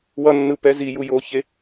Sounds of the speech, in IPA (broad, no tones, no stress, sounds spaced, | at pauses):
w ʌ nː ɯ p ɛ z i j u j o ç e